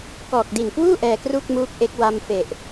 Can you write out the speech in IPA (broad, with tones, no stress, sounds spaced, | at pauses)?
k ɔː˨˩ k̚ d i˨˩ n k w uː˥˩ ʔ ɛː˧ k r u˥˩ k̚ m uː˦˥ k̚ ʔ e˦˥ k̚ w a˧ m f e˨˩ ʔ